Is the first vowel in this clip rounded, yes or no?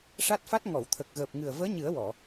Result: no